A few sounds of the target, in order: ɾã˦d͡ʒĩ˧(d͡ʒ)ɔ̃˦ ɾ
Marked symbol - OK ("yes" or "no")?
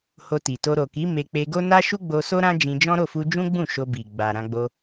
yes